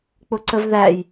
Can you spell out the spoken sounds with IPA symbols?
k͡p ʊ ǀ ə v ð æ j

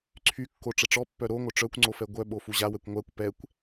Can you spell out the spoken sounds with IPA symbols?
ǀʰ y kː o ʈ͡ʂ ə ʈ͡ʂ ɔ pː œ ɾ o ŋʷ œ ʈ͡ʂ œ kʷ ŋ͡ǀ o f ɛ ɡʷ œ ɓ o f u ʑ a w ɛ kʷ ŋʷ a kʷ p ɛ kʷ

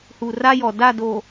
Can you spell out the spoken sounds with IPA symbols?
h u˨ r a˦ j ɔ˨ d a˦˨ d o˨

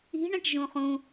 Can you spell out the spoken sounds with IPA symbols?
i̤ ɳ ẽ ʈ ʒ ũ χ ũ

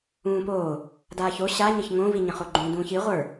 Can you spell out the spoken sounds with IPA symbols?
ũː p oː | d aː ç o ɕ a ɲ ə ç ŋ õ v i ɲ ə̃ χ o ɡ͡ǃ ũ d ũː ç i ʁʷ ə˞

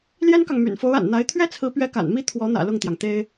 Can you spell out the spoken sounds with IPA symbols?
l j ɛ˥ n k ɑ˨ ŋ m y̰˨˩ n f o˧˥ ʊ̯ a̰˨˩ n n̪ a˧˥ ɪ̯ t̪ʰ ɥ ɛ˥ t͡sʰ ɹ̩˧˥ p ɥ ɛ˧˥ k a̰˨˩ n m i˥˩ t̪ʰ w ɔ˧˥ n̪ ä̰˨˩ l ʊ˥˩ ŋ t̪ j ɑ˩ ŋ t̪ e˥ ɪ̯

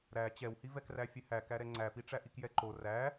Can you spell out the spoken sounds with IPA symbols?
ɾ æ t͡ɕ ɛ w h i v ɛ k r æ fʲ ɛ h æ k æ ɾ ɛ ŋ͡ǀ æ p i ʈ͡ʂ æ ʔ i k j ɛ ǃ o r æ

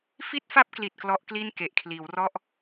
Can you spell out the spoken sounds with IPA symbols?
f i˥˩ t̚ f a˥˩ p̚ k l i˨˩ t̚ k l ɔ˦˥ ʔ k l i˥˩ n k e˨˩ ʔ kʰ l iː˩˦ w r ɔ˥˩ ʔ

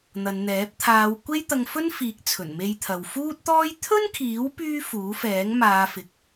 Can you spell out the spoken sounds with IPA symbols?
n̪ ɐ˨˧ n n̪ ɛː˨˥ p̚ t̪ʰ aː˨˧ w kʷ e˥ j t̪ ɐ˧ ŋ f ɵ˥ n f iː˨˥ k̚ t͡sʰ ɵ˨˩ n m e˧ j t̪ʰ ɐ˨ w f uː˥ t̚ t̪ ɔː˥ j t̪ʰ ɵ˥ n kʰ iː˨˥ w p yː˥ f uː˨˥ f ɛː˨˥ ŋ m aː˨˧ f ɪ˨ k̚

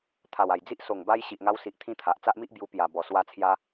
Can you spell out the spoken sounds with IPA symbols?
t̪ʰ a˨˩ w a˨˩ j d͡z i˦ ʔ s o˨˩ ŋ b a˧ j ɕ i˨ ʔ ŋ a˧ w s i˨ ʔ t̪ʰ ĩ˦ t̪ʰ a˨ ʔ t͡s a˦ ʔ m i˦ ʔ b j u˧ p j a˨˩ b ɔ˨˩ s w a˧ t͡sʰ j a˧

